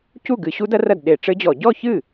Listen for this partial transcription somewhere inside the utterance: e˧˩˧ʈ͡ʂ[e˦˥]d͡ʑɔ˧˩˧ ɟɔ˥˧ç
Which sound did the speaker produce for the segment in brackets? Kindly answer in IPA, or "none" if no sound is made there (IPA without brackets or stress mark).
ɘ˦˥